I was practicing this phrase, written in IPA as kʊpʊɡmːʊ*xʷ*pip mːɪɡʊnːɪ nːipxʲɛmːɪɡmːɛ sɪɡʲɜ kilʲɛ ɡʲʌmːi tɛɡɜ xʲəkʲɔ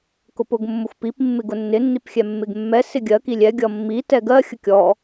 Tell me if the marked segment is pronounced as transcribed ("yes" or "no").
yes